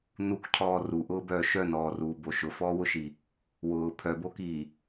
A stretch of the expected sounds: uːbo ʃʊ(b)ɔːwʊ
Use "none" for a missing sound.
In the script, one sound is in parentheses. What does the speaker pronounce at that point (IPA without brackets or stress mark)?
f